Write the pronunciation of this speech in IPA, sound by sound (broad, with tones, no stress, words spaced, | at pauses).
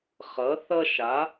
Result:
χʌ˧˥θʌ˥ʃa˧˥